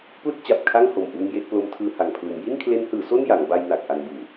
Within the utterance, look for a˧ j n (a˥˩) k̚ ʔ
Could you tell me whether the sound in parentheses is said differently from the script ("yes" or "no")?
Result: yes